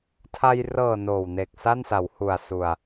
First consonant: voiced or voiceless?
voiceless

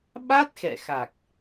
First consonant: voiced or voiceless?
voiced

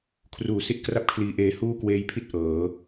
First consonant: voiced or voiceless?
voiceless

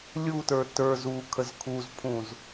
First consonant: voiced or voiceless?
voiced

